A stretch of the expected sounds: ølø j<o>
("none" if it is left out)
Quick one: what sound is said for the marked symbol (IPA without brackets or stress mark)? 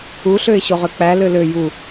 u